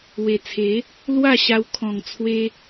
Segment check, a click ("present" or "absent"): absent